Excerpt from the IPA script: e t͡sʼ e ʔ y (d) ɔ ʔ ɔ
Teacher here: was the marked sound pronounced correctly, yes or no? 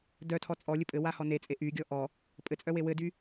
no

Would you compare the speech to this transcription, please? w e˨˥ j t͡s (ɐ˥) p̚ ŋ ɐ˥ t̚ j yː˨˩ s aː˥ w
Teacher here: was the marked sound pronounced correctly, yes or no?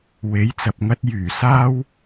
no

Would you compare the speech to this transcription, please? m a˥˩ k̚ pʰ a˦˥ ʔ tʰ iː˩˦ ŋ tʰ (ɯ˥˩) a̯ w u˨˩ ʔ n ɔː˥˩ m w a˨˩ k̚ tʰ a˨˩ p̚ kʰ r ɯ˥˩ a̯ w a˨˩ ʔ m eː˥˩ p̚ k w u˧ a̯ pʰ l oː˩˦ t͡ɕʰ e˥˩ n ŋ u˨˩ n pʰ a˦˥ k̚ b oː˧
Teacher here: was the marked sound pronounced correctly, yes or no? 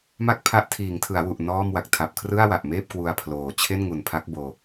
no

